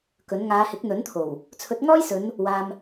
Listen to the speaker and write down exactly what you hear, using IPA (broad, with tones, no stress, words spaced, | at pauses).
kɵ˨˥n ŋaː˨˧hɪ˨˥k̚n̪ɵ˨˥nt̪ʰo˨˩w | t͡sʰɵ˨˥t̚ŋɔː˥jsɵ˨˧n | waː˧m